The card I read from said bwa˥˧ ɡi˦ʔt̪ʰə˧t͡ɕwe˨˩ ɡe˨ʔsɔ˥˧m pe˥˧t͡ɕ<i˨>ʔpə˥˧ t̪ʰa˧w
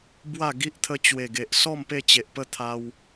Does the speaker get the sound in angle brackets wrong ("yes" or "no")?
yes